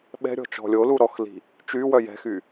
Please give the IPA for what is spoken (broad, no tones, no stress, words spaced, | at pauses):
ɓɛ̤ɾʲɔ̤ t͡ʃɔ̤lʲolu ɾɔxli̤ | t͡ʃywœ jɛ̤xy